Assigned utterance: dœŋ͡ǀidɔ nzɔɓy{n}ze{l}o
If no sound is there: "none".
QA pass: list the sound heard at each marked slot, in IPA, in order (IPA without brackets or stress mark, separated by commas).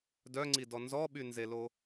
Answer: n, l